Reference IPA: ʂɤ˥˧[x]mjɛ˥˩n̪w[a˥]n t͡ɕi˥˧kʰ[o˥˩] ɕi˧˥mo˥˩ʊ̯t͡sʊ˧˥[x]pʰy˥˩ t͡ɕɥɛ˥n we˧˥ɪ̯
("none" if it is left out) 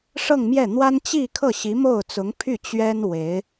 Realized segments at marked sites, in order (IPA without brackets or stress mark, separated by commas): ŋ, a˥, ɤ˥˩, ŋ